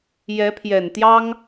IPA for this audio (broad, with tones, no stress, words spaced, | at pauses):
jɛ˧˥pʰjɛ˨˩nt̪jɑ˥ŋ